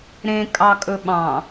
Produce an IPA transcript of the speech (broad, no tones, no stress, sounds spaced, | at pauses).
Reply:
ɾ ẽ kʼ ɑ kʼ ɵ ɓ ɑ̃